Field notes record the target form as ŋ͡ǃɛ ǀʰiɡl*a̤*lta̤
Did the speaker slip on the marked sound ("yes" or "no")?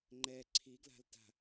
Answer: no